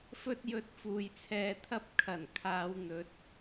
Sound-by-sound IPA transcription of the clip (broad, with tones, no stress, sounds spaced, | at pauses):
f ɵ˧ t̚ j ɵ˨ t̚ f uː˨ j t͡sʰ ɛː˧ t̪ʰ ɐ˥ p̚ kʰ ɐ˨˩ n kʰ aː˨˧ w n̪ ɵ˨˥ t̚